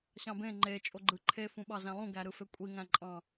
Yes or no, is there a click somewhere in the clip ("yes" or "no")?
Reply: yes